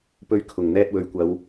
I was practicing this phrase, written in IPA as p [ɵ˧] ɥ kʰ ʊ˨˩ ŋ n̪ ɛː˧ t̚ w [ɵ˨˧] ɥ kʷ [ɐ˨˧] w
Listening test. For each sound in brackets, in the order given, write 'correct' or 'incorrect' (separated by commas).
correct, correct, correct